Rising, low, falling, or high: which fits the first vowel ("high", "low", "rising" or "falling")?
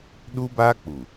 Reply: high